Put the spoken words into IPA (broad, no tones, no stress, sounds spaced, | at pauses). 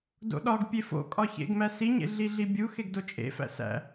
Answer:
d o̰ ɗ ɒ ɡ pʲ e f o̰ kʼ ɒ ç ḛ ɡ m æ s i ɲ ḛ ɮ i ɮ i bʲ u x e ɡ d o t͡ʃʼ ḛ f æ̰ s æ̰